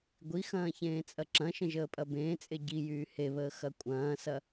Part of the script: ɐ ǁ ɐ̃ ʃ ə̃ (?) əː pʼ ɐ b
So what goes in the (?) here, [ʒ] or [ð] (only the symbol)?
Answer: ʒ